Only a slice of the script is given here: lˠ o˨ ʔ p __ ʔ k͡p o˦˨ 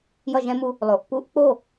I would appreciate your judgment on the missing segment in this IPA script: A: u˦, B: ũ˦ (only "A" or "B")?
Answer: A